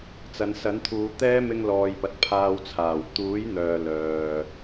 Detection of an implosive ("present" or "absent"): absent